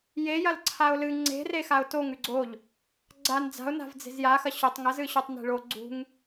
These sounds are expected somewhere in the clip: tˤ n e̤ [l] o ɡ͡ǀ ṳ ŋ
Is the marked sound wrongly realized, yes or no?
yes